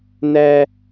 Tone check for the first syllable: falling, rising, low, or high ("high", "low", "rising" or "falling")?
high